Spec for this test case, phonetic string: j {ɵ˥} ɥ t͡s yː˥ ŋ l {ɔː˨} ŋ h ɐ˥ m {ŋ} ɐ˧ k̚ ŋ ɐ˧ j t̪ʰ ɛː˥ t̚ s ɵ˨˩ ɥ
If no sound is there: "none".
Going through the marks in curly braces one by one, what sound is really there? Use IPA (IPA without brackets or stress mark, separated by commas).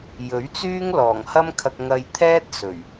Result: ɵ˨˥, ɔː˨˩, kʰ